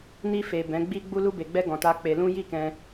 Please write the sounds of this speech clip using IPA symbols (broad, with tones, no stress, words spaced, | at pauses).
ni˧fe˨ bɛ̃˨˦ɡ͡bi˦ ɡ͡bu˧lu˧be˨ɡ͡bɛ˧ ɡɔ̃˨ta˧ k͡pe˧lũ˦ ji˦˨kɛ̃˧